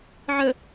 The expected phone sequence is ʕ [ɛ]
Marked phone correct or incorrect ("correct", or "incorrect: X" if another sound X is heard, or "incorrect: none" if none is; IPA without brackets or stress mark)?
incorrect: ə